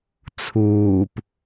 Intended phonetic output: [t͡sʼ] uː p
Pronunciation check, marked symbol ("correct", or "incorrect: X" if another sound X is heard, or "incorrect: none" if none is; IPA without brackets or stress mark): incorrect: t͡sʰ